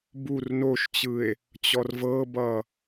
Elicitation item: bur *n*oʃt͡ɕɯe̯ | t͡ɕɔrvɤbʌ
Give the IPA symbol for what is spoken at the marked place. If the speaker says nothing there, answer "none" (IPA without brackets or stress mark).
n